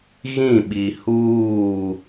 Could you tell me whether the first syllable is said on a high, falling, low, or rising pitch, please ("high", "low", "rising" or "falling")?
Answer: falling